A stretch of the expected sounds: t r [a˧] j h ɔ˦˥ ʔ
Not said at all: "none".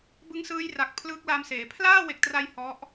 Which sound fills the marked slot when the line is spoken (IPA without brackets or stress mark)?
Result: a˧